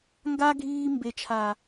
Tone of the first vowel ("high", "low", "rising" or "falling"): high